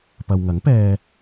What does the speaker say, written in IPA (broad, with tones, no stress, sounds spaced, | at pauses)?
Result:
p ɐ˨ w ŋ ɐ˨˥ ŋ p ɛː˧